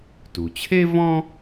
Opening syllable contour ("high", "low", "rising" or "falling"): low